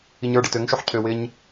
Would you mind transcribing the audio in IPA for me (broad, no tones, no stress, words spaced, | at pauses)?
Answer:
iɲə˞ ɖɪtøŋʃoħ cʰøwɪɲ